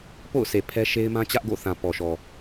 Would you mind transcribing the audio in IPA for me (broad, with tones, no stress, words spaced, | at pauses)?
po̰˦˨ʊ̯sʰe˨ pʰɛ˦ʃe˦ɪ̯mã˦ t͡ɕä˦ʔɡo̰˦˨θã˨ pɔ˨ʃɔ˨